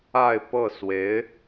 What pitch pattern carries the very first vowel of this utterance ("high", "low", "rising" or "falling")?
falling